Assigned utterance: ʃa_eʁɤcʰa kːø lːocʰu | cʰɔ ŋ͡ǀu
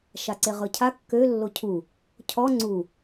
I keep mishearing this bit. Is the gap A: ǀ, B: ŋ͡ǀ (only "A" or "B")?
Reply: A